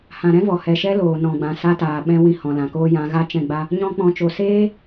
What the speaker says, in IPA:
h ã˨ ɾ ɛ̃˦ v ɔ˨ h ɛ˨ ʃ ɛ˦ l oː˨ n ɔ̃˨ ɡ͡b ã˨ s a˧ t aː˨ ɓ ɛ̃˧ w ĩ˧ h ɔ̃˨ l ã˨ k oː˦ j ã˧ ɣ a˦ t͡ʃ ɛ̃˦˨ ɡ͡b a˦ | ɲ ɔ̃˧ k͡p ɔ̃˨ t͡ʃ o˨ s eː˦

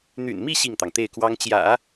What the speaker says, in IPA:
n̪ y̰˨˩ n m i˥˧ ɕ i˥˩ ŋ t̪ ɑ˩ ŋ t̪ e˥˩ ɪ̯ k w ɑ˥ ŋ t͡ɕ j ä̰˨˩˦

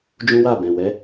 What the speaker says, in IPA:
d͡ʒ ũ˦ w a˦˨ b ɛ̃˨ w ɛ˨˦

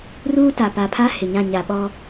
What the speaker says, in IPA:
r uː˦ t a˨ p a˨ pʰ a˦ h ɪ˨ ɲ ã˦˨ ɲ a˨ ɓ ɔ˦

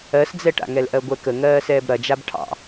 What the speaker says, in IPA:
ɜ s d͡z ɛ ʈ a̰ ŋ ɛ l ʔ ɜ ɡʷ ɛ k ə ŋ ɜː s ɛː b ɾ ɐ d͡ʒ a b ʈʰ ɑ̰

